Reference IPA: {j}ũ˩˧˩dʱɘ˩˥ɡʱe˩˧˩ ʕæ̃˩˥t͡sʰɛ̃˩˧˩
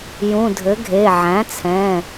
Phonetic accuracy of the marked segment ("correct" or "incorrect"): correct